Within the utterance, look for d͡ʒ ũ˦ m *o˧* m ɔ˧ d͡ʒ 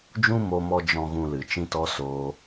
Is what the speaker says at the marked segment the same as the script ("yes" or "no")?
yes